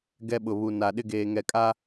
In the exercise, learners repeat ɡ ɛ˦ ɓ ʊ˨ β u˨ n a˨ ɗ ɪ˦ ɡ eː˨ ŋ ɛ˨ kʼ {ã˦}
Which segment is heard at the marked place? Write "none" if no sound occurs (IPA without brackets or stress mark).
a˦